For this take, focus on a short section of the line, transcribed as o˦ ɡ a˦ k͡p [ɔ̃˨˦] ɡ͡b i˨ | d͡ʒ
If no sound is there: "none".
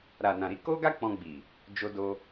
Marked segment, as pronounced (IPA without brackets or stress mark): ɔ̃˧